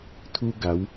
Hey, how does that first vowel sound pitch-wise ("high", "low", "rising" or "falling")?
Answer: high